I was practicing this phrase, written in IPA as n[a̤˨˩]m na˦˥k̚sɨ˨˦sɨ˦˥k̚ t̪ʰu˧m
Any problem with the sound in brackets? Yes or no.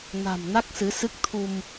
no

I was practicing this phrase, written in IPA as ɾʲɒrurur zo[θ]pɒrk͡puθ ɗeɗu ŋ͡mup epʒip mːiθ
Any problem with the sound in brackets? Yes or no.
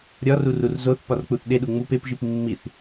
no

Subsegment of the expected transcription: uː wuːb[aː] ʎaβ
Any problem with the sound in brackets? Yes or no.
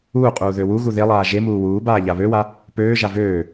no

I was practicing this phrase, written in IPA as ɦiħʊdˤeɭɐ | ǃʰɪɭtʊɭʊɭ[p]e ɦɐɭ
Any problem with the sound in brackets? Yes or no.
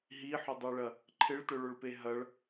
no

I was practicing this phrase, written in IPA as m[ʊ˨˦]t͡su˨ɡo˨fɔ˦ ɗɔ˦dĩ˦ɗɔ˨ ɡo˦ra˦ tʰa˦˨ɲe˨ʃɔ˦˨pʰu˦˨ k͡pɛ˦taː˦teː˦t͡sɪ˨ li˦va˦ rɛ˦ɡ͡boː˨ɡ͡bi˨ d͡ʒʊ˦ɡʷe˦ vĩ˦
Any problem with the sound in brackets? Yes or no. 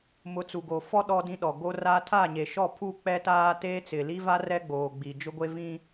no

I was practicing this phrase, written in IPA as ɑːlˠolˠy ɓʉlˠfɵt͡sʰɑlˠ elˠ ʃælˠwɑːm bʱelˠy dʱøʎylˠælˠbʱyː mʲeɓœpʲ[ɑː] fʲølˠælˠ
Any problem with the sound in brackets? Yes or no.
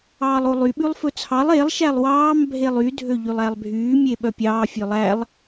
no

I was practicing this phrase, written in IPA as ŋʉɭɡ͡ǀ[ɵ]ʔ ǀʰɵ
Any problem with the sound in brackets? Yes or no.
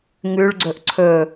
no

